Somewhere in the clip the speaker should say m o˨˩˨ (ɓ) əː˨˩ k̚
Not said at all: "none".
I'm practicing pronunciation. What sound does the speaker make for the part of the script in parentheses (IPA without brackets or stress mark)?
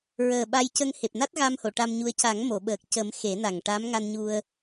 ɓ